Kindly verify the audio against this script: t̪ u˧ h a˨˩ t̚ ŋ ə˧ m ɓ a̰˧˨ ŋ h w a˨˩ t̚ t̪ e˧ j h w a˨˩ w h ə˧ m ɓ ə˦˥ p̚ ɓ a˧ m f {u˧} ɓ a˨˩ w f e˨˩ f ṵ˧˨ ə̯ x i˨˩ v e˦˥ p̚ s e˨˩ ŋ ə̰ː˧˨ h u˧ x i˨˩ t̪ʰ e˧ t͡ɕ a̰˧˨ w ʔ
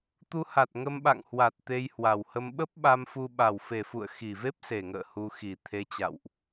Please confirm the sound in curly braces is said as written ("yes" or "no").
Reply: yes